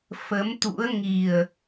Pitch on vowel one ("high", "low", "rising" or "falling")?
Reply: rising